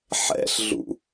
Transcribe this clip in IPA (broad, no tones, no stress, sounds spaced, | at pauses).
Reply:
ħ ɛ̰ ɬ ɮ ṵ